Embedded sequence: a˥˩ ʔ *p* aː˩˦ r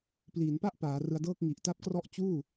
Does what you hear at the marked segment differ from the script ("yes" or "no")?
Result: no